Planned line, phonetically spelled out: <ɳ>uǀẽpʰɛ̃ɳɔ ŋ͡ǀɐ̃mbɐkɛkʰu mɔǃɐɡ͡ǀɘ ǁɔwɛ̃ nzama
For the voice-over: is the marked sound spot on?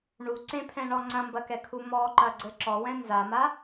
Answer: yes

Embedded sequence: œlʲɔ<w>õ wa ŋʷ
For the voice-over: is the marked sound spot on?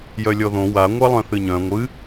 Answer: no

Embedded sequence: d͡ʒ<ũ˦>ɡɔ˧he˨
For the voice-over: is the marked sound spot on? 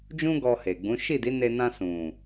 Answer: yes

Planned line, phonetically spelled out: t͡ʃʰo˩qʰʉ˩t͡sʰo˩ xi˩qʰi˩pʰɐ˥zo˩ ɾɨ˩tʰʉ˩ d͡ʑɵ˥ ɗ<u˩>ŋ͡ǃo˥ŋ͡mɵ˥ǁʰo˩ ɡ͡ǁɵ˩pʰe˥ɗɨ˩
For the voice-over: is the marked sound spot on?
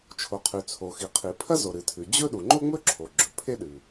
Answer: yes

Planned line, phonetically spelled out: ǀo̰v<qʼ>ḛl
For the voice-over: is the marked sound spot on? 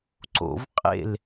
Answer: yes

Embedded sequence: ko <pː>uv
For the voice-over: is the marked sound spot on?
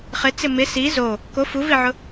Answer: no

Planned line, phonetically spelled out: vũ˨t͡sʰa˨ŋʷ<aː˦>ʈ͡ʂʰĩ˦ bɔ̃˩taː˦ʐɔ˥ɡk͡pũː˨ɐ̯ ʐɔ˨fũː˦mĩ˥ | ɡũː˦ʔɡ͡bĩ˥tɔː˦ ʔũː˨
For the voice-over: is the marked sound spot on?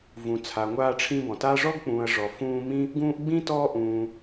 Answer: yes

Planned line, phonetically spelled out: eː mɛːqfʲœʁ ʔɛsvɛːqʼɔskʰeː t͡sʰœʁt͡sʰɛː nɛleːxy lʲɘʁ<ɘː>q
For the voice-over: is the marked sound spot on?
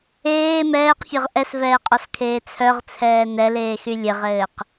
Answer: yes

